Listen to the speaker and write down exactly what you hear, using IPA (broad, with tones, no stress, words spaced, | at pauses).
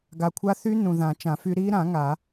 ɡa˨kʷʰa˦˥ θy˦˥ nũ˨ðã˨˩˦t͡ʃã˨˩˦fy˦˥ ɾi˦˥ɾã˨˩˦ ŋa˨˩˦